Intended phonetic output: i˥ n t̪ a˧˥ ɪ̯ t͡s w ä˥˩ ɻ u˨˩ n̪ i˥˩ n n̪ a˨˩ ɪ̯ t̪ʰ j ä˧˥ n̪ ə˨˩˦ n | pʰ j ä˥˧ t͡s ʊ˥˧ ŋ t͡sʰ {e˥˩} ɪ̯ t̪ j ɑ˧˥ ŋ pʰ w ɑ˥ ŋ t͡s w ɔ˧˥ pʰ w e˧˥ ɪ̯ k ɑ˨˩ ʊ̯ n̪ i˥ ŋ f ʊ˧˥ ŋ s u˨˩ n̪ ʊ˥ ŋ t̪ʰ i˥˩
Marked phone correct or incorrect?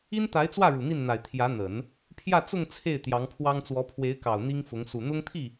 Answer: correct